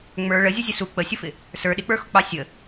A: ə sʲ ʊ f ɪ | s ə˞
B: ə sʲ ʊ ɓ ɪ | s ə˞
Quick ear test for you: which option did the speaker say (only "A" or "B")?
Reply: A